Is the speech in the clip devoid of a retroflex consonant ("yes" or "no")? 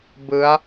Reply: yes